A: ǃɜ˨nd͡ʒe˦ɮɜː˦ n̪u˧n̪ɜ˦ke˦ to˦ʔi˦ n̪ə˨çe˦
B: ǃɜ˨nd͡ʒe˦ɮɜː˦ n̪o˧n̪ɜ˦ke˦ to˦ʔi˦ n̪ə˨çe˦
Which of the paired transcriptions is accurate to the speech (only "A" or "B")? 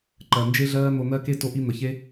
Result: B